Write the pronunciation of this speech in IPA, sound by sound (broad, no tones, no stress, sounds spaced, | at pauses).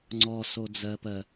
ŋ͡ǀ ɔ s o d͡z ɜ p ɜ